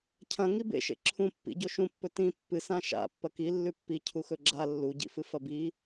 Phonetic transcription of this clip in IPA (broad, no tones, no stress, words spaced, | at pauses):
cʰɐ̃ ŋibḛʃḛ ǁʰũ pːḭɟo ʃũpːɵ tĩ pːɨ sãʃa̰ pːɐki lːʉpːi cʰuxɵɡ͡ǁa lːuɟḭfɨ fɐbi